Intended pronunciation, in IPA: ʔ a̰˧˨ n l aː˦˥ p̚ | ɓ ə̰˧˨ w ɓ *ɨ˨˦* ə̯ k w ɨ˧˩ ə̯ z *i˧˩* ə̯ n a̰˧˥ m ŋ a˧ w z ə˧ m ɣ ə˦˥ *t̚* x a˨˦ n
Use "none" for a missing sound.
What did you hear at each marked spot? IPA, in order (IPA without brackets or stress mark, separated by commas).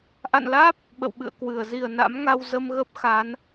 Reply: ɨ̰˧˨, i˧˩, p̚